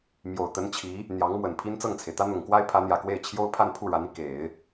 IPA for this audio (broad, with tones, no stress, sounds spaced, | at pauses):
m j o˨˩ ʊ̯ t̪ ə˧˥ n t͡ɕʰ i˧˥ | n̪ j ɑ˧˥ ŋ m w ə˨˩ n pʰ i˥ n t͡s ɤ˥˩ ŋ t͡sʰ e˩ ɪ̯ t̪ ä˥ n̪ ʊ˨˩ ŋ k w a˥ ɪ̯ pʰ ä˧˥ n̪ j ä˨˩ k w e˥˩ ɪ̯ t͡ɕʰ j o˥ ʊ̯ pʰ a˥˧ n pʰ u˥˩ ɻ a˧˥ n i˧ k e˨˩˦ ɪ̯